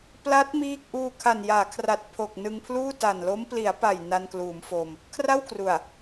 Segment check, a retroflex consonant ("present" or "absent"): absent